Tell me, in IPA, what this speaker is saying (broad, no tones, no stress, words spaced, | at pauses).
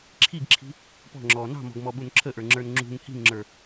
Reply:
ǁʰiɡǁʰi̤ | pɔ̤ŋ͡ǁɔː nɑ̤mɔ̤ɡmɔɓun ǁʰəʔə˞ŋ͡ǁə˞n ŋ͡ǁṳŋ hi̤ŋŋ͡ǁə˞